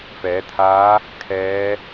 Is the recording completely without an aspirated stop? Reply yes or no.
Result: no